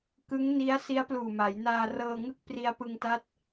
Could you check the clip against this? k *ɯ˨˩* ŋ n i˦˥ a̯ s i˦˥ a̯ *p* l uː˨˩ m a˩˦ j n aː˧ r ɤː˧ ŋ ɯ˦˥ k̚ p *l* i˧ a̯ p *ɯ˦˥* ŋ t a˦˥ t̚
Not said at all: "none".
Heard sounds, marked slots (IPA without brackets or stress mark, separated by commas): ɯ˦˥, p, r, ɯ˧